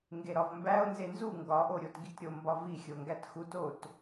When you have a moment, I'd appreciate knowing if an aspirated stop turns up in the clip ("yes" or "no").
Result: no